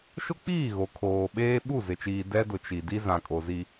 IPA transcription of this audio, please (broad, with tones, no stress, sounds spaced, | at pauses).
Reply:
ʃ ʊ˦ k͡p iː˦˨ ɣ o˨ kʰ oː˨ ɓ eː˦ ɓ u˦˨ z ɪ˨ t͡ʃ iː˨ d ɛ˦ d ʊ˨ t͡ʃ i˨ d i˦ z ã˨ kʼ o˨ z i˦